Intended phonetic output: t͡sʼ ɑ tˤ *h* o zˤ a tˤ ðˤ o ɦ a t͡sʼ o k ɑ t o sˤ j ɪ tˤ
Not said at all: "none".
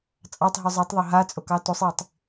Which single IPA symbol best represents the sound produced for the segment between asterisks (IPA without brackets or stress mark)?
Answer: ɦ